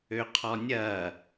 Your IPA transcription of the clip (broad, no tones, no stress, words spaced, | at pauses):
øqʰɔnʲɐː